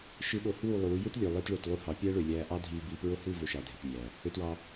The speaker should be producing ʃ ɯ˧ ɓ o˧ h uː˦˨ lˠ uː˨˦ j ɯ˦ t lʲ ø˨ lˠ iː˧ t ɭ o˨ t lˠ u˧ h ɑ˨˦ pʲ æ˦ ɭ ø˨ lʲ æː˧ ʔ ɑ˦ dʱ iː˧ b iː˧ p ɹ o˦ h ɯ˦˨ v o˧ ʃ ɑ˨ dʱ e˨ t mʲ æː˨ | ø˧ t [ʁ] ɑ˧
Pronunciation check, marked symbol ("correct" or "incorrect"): incorrect